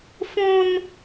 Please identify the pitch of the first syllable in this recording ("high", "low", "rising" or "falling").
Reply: high